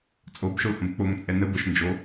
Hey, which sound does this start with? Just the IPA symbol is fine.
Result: t͡sʼ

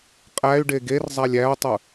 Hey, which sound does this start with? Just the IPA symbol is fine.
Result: qʼ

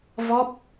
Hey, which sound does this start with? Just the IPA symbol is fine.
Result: v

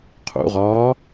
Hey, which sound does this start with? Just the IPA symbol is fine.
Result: qʰ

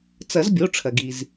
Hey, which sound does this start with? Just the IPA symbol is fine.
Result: t͡s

